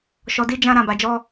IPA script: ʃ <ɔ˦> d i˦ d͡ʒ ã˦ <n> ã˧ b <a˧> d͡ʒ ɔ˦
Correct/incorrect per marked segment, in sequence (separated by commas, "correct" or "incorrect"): incorrect, incorrect, correct